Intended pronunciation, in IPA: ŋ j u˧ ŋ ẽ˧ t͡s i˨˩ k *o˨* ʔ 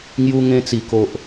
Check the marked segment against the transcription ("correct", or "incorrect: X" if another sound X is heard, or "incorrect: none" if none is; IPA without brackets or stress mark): correct